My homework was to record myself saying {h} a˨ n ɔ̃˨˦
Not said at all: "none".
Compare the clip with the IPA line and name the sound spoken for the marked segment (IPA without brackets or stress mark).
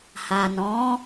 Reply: h